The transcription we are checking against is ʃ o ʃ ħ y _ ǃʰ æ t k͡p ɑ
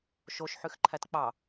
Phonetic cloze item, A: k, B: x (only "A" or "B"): B